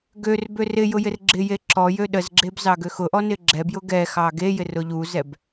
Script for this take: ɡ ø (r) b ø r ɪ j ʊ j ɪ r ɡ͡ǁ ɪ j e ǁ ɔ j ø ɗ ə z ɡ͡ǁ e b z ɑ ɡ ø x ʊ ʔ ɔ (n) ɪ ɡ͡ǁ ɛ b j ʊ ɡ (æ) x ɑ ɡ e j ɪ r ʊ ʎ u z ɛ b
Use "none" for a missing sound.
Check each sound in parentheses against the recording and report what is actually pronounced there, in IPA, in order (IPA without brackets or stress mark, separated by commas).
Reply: r, n, ɛ